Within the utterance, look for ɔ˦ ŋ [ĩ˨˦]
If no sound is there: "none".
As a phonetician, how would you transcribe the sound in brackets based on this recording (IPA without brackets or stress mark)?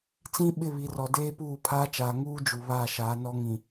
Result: ĩ˨